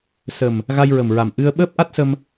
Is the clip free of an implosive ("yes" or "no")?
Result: no